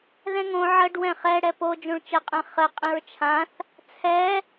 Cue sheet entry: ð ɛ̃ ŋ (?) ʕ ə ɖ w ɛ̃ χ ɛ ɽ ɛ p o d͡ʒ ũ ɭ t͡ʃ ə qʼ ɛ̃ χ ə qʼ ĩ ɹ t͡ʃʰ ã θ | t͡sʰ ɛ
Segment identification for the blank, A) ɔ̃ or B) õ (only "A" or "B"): B